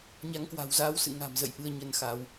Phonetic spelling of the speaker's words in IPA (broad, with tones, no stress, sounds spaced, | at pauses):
ɲ a˨˦ ŋ k w a̤˨˩ w z aː˧ w s ɨ̰˧˨ ŋ a̤˨˩ m z ə̰˧˨ j ʔ ɨ˧ ə̯ ɲ ə˧ n x a˨˦ w